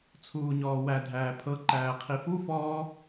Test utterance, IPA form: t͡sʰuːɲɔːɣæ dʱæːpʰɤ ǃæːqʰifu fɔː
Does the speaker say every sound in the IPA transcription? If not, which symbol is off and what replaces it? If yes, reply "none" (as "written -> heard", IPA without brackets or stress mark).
ɣ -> w